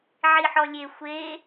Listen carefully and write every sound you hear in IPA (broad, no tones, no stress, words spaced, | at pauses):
ʕiħɔlʲe xʷe